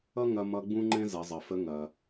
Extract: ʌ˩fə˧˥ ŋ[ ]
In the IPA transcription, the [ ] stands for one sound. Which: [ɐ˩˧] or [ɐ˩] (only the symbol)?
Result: ɐ˩